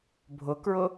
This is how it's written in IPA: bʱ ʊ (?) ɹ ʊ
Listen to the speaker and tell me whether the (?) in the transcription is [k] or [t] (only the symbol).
k